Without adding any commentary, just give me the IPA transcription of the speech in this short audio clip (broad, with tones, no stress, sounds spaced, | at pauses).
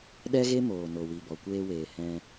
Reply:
ɗ ɛ˦ ɣ e˦ m oː˨ n o˨ w i˨ b ɔ˨ kʷ eː˧ w eː˨ h ɛ̃˧